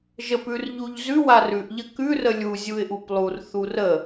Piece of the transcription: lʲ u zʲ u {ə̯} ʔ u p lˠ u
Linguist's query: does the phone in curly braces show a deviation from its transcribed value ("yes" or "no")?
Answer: yes